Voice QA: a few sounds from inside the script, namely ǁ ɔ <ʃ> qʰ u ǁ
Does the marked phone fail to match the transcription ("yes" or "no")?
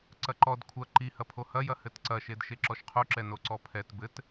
no